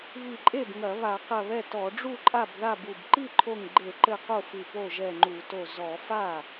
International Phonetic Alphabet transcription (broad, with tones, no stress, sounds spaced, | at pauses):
β i˧˩ ǃʼ e˥˩ b ŋ ɐ˧˩˧ β a˧˩˧ q ɐ˧˩ β ɛ˥˩ t ɔ˧˩˧ ɖ͡ʐ u˥˩ ǃʼ a˥˩ b ð a˥˩ b u˧˩ b ǃ i˥˩ ǃʰ o˧˩ ŋ ɡ͡ǃ e˧˩˧ ǃ ɘ˧˩ q o˥˩ f ɨ˧˩ p o˥˩ ʒ ɛ˧˩ ŋ͡ǃ u˧˩˧ t o˧˩ z ɔ˧˩˧ f a˥˩